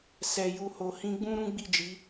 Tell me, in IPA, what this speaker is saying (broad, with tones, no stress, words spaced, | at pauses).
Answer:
sɛ˨ju˨ho˨ hĩ˧ɡ͡bũ˦ ɾũ˦ɡ͡bi˦˨d͡ʒi˨˦